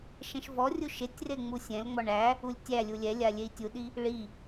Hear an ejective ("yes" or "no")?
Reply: no